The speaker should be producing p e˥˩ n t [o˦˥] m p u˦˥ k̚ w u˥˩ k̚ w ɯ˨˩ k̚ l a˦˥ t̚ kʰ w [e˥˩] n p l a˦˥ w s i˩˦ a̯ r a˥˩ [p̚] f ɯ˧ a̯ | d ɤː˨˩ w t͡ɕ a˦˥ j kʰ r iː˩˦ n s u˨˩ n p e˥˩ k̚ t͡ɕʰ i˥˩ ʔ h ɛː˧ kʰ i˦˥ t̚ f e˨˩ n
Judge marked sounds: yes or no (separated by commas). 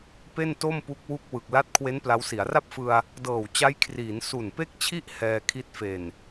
no, no, yes